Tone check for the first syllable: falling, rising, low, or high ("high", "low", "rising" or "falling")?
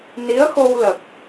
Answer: rising